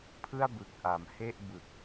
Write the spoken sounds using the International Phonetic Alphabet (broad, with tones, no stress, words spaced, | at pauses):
pʰɯ˥˩a̯bɯ˨˩k̚ʔa˩˦m he˥˩ʔbɯ˨˩k̚